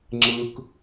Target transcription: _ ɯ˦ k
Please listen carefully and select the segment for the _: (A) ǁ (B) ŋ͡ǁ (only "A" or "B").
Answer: B